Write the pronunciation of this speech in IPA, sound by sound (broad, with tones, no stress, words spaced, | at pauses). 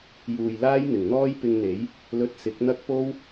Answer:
juː˨jlaː˥j n̪ɪ˨˩ŋn̪ɔː˥jpɪ˧ŋn̪e˨˥j | lɵ˧t̚sɪ˨˥k̚n̪ɐ˥k̚ po˥w